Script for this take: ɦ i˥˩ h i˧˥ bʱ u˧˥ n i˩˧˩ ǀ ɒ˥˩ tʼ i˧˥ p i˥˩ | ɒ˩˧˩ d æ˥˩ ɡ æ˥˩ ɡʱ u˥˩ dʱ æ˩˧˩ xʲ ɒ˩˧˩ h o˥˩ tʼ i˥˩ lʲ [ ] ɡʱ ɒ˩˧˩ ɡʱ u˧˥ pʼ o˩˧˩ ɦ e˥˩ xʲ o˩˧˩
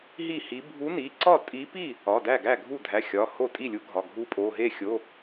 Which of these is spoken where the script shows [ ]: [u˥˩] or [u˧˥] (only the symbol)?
u˧˥